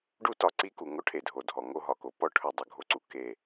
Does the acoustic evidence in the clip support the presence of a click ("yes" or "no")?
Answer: yes